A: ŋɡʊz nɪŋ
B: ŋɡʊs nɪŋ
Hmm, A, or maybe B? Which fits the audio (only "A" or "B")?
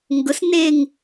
B